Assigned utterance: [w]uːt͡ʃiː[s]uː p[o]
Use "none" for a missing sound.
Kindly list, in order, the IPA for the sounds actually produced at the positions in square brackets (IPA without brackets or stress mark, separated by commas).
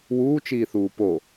w, θ, o